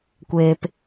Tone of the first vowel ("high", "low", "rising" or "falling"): low